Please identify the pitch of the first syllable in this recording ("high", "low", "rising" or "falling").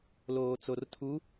low